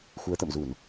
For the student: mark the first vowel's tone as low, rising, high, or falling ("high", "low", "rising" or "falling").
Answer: rising